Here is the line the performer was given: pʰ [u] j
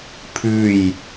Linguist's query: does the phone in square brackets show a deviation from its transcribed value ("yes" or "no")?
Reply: yes